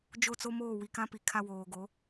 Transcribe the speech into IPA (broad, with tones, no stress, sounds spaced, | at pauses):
d͡ʒ o˦˨ t͡s o˦ m oː˦˨ w i˨ k ã˦ p i˨ kʰ a˦ w oː˨ ɡ o˨˦